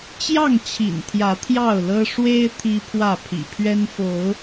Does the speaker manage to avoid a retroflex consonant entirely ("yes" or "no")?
no